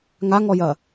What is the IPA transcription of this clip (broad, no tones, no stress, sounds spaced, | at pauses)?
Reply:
ŋ a ŋ ɔ j ɐ